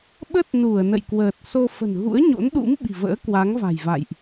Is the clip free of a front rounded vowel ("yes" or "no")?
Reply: yes